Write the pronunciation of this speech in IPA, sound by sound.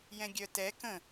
jɛ̃ɡʲœtɛ kə̃

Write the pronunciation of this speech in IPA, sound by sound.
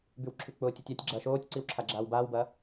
bywǁʰyk͡pʊːtʲotʲ atʲ ɡ͡ǁɐːʃoːtʲǀiw ǁʰaɡ͡ǁaːwbaːwbɐː

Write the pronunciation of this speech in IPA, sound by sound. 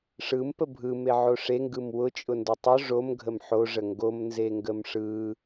ʂɯmpə bʱɯmeʕo ʂeŋɡɯm wʊt͡ʃʼʊndʊ tˤʊ ʐomɡʱəm ħoʐə ŋɡomnzeŋɡəm ʂɯ

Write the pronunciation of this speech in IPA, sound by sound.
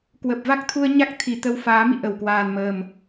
kwə˨˩p̚va˦˥k̚t̪ʰu˧ə̯ ɲa˦˥k̚t̪ʰi˨˩t̪ə˧wfaː˨˦ mḭ˧˨ʔə˧˩wkwaː˨˩nməː˨˩m

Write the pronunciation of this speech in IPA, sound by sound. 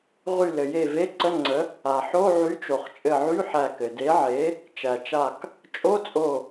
ʁy˧˩lɘ˩je˧˩ ve˧˥˧ǀə˧˥˧ŋ͡ǀə˨˥ | a˩ħo˧˥˧ ʕy˨˥t͡ʃo˩χt͡ʃʼɘ˧˩ʕy˧˥˧ ħæ˧˩kɘ˩de˨˥ʕe˨˥ | t͡ʃæ˩t͡ʃa˧˩k | t͡ʃʼo˧˥˧t͡sʼo˧˩

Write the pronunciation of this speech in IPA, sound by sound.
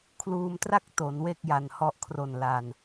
kʰluː˧mtra˥˩k̚ to˩˦nwe˥˩k̚ja˨˩nhɔ˦˥ʔ kʰro˨˩n la˧n

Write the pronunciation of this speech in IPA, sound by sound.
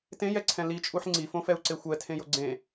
tẽjɛǀʰɛ̃ lit͡ʃʼuħ ŋ͡ǀifõfɛu̯ǀe xʷɛtʰẽjo ɡ͡ǀẽ

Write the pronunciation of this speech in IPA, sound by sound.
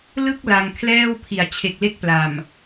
lɯ˥˩k̚ la˧ŋkʰlɛː˥˩w pʰi˩˦a̯t͡ɕʰe˨˩k̚le˦˥k̚ pla˨˩m

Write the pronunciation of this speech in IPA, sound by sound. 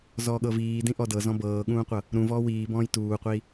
zɔːɠɤviː dĩʔɔdɤ zɔ̃bɤːɠũːqʷɤ | ɾũvɔː wiːbɔ̃ːj tuːqʷiː

